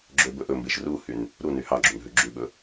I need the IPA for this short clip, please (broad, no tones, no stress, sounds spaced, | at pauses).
ɡ͡ǁ ø b ɵ ʔ ɵ m b e ʃ r u h y n | ɾ u n y h ɑ ɡ͡ǁ u n ɦ ʉ ɡ͡ǁ ʉ ɓ ɵ